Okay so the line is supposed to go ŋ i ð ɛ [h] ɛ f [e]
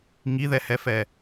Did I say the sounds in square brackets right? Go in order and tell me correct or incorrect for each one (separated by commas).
correct, incorrect